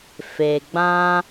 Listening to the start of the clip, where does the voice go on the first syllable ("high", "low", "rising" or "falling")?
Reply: low